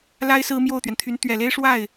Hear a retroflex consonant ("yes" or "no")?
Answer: yes